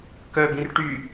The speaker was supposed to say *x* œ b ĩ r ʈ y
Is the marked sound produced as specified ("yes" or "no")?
no